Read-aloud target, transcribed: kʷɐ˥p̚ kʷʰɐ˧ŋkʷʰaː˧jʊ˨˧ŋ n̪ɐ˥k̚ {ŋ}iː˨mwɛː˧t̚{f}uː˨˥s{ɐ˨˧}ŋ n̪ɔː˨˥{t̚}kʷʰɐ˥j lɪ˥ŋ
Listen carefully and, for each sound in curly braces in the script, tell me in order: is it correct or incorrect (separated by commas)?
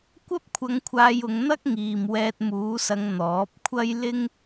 correct, incorrect, correct, incorrect